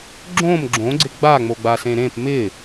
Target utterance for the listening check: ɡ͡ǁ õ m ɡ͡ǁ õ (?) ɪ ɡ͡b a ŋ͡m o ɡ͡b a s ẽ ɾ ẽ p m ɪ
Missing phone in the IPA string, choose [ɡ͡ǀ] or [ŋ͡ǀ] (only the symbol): ɡ͡ǀ